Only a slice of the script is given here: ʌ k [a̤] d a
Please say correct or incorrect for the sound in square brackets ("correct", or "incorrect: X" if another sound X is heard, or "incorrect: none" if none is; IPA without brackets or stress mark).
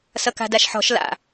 correct